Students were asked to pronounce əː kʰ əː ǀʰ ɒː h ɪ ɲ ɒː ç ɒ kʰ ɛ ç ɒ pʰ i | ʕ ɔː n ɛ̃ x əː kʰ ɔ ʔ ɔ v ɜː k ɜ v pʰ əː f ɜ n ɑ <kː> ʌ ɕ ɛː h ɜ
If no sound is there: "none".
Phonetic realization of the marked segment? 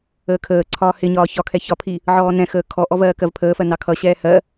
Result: kʰ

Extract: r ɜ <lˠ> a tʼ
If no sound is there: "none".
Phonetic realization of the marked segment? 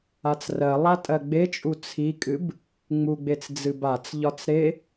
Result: lˠ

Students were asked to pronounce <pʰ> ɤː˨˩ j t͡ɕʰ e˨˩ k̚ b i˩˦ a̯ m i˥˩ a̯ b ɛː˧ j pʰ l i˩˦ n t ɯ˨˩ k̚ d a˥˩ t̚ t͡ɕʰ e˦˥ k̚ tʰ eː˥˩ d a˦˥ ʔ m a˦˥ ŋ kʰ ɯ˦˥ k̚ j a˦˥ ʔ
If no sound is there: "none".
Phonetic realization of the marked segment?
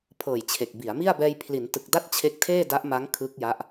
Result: pʰ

